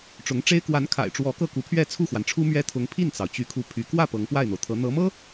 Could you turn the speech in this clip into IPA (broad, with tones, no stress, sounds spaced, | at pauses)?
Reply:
ʈ͡ʂ ʊ˧˥ ŋ ʈ͡ʂ e˥ ɪ̯ k w a˧˥ n kʰ a̰˨˩ ɪ̯ ʈ͡ʂ w ɔ˧˥ k ɤ˥˩ k u˧˥ pʰ ɥ ɛ˥˧ t͡sʰ u˥˩ x w a˩ n ʈ͡ʂʰ u˥ m ɥ ɛ˥ t̪ʰ ʊ˧˥ ŋ pʰ i˥˩ n t͡s ɑ˩ ʊ̯ t͡ɕ y˧˥ kʰ u˧˥ pʰ y˧˥ k w ä˥˩ p ɤ˧˥ ŋ p w a˥˩ ɪ̯ n̪ o˩ ʊ̯ t̪ʰ ɤ˧˥ n̪ ɤ˧˥ m ɤ˥